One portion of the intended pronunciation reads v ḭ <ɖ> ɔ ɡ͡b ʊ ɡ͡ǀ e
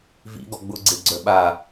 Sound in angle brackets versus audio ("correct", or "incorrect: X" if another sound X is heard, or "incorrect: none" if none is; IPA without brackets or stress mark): incorrect: ɡ